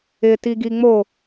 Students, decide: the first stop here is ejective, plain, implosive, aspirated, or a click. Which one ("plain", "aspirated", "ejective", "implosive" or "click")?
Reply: plain